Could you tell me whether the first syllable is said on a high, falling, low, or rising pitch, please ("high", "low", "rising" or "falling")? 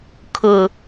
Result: low